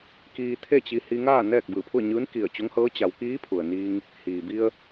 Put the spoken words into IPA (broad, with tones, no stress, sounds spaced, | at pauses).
k iː˧ t̪ʰ e˥˨ t͡ɕ i˧ h i˧ ŋ aː˥˨ n ɛː˥˨ k̚ b ɯː˧˩ pʰ u˥˨ ə̯ ɲ ɯː˧˥ n k i˧˩ ə̯ t͡ɕ o˧˥ ŋ h ɤː˧˥ t͡ɕ a˩˧ w k iː˧˥ pʰ u˩ ə̯ n iː˧ ŋ | h iː˩ b i˧ ə̯